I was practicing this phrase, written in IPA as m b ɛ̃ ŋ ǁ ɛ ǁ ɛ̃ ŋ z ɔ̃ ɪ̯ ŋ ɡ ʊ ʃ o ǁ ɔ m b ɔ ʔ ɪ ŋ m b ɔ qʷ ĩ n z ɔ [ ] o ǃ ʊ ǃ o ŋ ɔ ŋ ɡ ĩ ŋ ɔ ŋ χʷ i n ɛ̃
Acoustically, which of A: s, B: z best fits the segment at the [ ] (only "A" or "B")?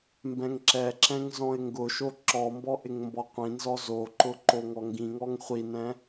B